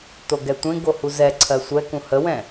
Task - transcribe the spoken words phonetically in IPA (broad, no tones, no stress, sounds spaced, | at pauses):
t o ɡ ɛ tʷ ẽ ɡ o h u z ɛ ǀʰ ɜ sʷ ɛ k ũ h ə w ɛ̃